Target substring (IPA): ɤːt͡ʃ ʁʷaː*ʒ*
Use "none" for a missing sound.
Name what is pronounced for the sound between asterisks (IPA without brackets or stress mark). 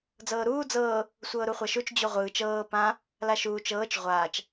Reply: t͡ʃ